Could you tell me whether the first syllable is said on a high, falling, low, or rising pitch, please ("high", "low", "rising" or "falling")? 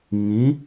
rising